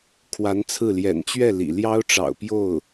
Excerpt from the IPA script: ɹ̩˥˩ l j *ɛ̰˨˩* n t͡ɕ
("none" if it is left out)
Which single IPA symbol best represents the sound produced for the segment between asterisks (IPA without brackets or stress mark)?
ɛ̰˨˩